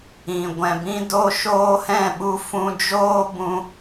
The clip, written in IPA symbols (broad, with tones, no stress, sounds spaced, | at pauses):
ĩ˨ ɡʷ ɛ̃˨ b ĩ˧ d o˧ ʃ oː˧ h ɛ̃˦˨ ɓ u˧ f ũ˧ d͡ʒ oː˦ b ũ˧